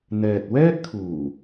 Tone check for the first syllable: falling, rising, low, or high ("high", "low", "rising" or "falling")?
low